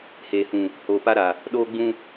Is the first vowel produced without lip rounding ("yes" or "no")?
yes